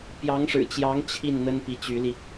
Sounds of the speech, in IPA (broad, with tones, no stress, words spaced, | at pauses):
pjɑ˧˥ŋʂɻ̩˨˩t͡ɕjɑ˧˥ŋ t͡ɕʰi˥˩n n̪ə˥npi˧˥t͡ɕy˧˥li˧